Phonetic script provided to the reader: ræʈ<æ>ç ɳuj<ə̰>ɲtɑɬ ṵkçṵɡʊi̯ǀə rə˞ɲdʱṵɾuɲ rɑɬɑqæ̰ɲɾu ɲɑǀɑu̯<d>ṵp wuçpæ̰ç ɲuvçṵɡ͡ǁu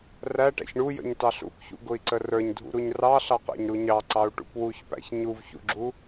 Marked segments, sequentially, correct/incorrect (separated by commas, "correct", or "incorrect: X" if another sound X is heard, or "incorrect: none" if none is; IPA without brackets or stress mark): incorrect: æ̰, correct, incorrect: ʈ